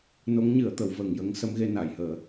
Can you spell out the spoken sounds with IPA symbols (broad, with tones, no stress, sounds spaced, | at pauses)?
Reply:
n o˧˥ ŋ ɲ ɨ˨˩˦ ə̯ t̪ ə˨˩˦ w v əː˨˩ ŋ j ə˧˥ ŋ s ə˧˥ m ɣ e˧ n a˨˩˨ j h əː˨˩˦